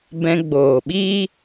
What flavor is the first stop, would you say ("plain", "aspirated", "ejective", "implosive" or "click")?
plain